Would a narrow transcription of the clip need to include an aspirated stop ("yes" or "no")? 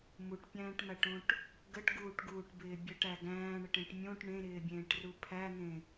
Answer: yes